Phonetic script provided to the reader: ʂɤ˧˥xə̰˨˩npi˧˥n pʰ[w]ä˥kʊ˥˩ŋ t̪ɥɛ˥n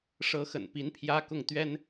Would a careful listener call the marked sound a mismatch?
yes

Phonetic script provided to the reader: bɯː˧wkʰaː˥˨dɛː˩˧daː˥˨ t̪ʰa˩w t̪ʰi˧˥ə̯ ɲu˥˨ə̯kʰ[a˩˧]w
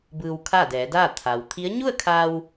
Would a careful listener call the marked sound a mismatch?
yes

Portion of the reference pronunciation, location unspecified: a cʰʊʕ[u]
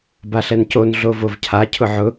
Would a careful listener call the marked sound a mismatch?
yes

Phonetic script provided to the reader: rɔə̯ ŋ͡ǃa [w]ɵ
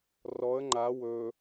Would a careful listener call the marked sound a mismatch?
no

